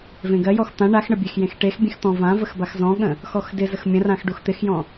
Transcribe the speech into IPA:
v ẽ ɡ ɜ j ɔ x t̪ ã ɳ a x ɳ ə bʲ e x j ẽ x ʈ e x bʲ ẽ x t̪ ɔ̃ v ã v ə x b a x z ɔ̃ ɠ ə̃ | x ɔ x d ɪ z ə x mʲ ə̃ r ã x ɖ u x t̪ ɪ x j ɔ̃

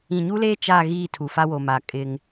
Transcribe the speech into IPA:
ĩ˨ ɲ u˦ l eː˦ t͡ʃ a˦˨ ɣ iː˦˨ tʰ u˨ f a˦ w o˨ m a˨ kʼ ɪ˦ ŋ

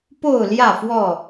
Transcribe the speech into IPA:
p o˥˨ ʊ̯ l j ä˥˨ f w ɔ˥˨

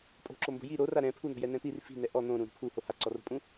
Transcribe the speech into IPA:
pʼ o̤ ǁ o m b o̤ j i ɾ o r a ɾ ɛ̃ pʰ u n̪ o̤ j ɛ n ɛ̃ t̪ i r f i̤ n ɛ ʔ ɔ n̪ õ ɾ ũ ɾ o̤ pʰ u h o h a ǀ ɔ r o̤ pʼ ũ

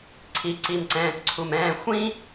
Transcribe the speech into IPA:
ǀʰ i˨ ǀ i˨ m ǀ ɛ̃ː˨ t ǀʰ u˨ m ɛ̃ː˧ xʷ ĩ˦

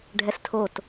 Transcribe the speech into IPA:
ɖʱ ɛ s tʰ o t

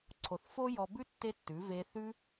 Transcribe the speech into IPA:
ǀʰ o˨ θ f o˦ j ɔ˧ b ʉ˦ tː e˦ tː ʉ˨˦ v e˧ θ ʉ˦

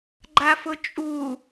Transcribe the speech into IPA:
ɡ͡ǃ a f ʊ t͡ʃʼ u

